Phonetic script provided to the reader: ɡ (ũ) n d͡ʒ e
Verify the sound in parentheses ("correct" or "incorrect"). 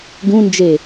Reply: correct